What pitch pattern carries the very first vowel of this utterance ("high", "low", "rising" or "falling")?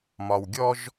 low